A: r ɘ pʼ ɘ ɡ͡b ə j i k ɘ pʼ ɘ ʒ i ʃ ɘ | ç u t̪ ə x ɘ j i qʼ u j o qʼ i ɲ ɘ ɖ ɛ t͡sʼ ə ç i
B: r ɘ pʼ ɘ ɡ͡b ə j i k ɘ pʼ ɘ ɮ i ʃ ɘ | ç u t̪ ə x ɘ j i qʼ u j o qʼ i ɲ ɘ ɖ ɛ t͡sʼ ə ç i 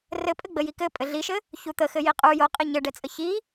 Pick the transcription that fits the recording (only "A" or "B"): B